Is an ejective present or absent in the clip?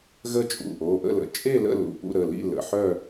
present